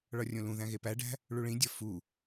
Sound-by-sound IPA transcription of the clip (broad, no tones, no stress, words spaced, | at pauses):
ɭɒrʲõlũðæ̃ ɣepæɖæ̤ | ɭuɭĩdʲɒ fu